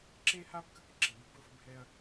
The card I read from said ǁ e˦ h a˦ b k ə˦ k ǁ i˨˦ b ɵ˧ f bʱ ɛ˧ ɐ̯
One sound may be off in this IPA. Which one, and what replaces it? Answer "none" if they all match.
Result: none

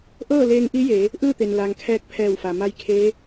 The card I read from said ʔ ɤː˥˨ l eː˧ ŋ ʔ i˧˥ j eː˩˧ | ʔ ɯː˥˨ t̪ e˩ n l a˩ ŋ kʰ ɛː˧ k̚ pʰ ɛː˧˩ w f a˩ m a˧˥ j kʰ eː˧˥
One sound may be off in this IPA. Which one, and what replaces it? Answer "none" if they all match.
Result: none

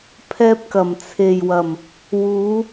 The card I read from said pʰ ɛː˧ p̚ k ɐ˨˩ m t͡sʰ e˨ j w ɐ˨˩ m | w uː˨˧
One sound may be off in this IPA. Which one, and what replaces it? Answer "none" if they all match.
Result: none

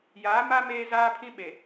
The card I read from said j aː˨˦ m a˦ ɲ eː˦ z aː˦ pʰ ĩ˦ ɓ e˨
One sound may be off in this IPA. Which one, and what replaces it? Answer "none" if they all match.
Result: ɲ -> m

